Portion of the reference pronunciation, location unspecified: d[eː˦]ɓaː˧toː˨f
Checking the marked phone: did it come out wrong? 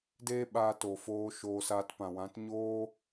no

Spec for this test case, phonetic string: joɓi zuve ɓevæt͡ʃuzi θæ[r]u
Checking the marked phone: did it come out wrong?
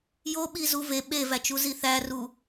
no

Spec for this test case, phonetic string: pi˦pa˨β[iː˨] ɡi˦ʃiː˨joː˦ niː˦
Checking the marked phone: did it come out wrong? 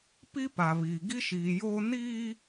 no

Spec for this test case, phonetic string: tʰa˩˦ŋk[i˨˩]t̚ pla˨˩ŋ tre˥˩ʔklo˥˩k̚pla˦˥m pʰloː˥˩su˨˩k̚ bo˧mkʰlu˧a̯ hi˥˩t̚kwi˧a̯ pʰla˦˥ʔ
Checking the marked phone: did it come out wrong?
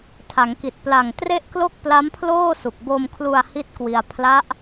no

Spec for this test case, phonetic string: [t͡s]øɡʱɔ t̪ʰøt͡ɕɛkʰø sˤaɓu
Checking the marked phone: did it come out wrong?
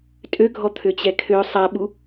yes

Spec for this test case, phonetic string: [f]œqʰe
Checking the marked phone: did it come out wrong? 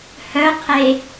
yes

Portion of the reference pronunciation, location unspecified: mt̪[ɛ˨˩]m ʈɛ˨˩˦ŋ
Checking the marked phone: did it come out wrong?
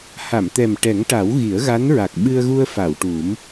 no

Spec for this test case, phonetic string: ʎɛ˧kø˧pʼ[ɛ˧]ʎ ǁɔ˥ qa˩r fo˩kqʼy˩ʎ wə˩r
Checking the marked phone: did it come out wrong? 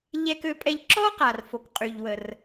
no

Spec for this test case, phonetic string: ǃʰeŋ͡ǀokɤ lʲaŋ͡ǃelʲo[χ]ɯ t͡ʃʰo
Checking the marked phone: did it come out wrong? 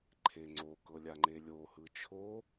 yes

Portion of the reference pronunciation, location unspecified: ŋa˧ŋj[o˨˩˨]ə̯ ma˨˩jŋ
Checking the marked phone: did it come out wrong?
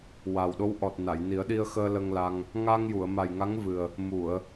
yes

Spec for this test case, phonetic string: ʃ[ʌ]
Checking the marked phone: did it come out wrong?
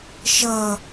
no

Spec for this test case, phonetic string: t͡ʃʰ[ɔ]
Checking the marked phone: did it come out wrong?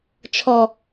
no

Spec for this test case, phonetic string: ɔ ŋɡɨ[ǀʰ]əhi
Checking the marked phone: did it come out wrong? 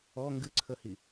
no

